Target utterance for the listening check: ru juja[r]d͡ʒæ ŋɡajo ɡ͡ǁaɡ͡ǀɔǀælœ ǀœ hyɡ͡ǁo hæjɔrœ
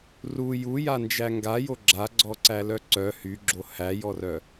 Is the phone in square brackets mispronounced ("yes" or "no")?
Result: yes